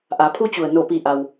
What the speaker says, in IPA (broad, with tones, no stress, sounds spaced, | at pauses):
ʔ a˩˧ pʰ u˧ t͡ɕ u˩ ə̯ n o˧˩ p i˧˩ ʔ a˧ w